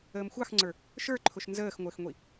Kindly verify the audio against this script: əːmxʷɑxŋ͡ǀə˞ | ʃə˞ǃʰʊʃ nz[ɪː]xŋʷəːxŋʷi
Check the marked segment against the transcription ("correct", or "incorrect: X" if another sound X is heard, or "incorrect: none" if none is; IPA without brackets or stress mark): incorrect: əː